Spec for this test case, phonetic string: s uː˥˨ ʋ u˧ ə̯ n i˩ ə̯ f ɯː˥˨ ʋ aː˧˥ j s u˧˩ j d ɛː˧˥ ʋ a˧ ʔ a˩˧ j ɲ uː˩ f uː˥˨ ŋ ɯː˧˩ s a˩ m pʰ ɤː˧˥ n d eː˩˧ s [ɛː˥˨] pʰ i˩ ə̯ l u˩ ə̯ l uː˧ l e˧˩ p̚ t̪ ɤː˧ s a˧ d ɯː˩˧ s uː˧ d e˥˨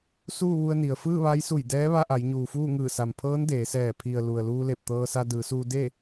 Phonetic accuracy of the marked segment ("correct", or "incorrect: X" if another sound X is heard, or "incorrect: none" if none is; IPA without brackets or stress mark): incorrect: ɛː˧˩